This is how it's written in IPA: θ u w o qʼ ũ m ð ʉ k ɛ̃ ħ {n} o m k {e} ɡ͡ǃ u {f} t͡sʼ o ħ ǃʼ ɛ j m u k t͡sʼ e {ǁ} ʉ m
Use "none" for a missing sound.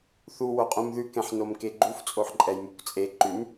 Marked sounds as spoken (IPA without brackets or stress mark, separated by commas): n, e, f, ǃ